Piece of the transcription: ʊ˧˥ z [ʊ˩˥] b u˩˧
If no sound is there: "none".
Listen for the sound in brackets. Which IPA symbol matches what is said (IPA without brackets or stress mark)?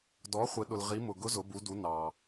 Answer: ʊ˩˧